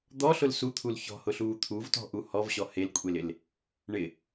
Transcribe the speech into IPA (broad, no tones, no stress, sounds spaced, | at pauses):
d̪ ɔ ɬ ʊ l s u t̪ʰ u l ç ɔ̤ h ʊ ɬ uː t̪ʰ u v t ɔ̤ ʔ u h ɔ v ɕ ɔ h e l kʷʼ e l ɪ l | ɳ ɪ